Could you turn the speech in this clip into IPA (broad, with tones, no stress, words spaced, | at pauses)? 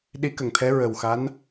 ɗi˧˥kə˨˩˨ŋt̪ʰɛ˧˥ ɹə˨˩wxa˧˥n